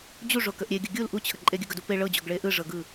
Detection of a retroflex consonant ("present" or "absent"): present